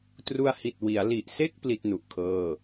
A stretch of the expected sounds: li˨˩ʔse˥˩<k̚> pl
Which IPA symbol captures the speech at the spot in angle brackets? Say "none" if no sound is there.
k̚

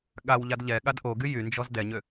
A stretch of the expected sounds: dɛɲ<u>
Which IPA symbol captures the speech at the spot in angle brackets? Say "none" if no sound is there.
ø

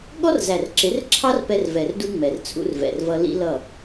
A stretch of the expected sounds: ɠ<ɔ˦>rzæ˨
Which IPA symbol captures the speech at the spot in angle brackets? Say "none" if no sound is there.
ɔ˦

